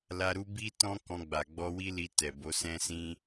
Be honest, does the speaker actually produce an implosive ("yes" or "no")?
no